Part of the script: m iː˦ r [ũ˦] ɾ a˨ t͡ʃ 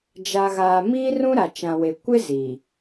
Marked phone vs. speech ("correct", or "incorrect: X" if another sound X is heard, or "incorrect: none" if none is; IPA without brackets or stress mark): correct